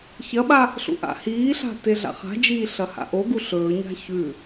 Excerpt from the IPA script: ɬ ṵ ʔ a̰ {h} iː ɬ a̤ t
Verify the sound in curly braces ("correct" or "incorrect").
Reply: correct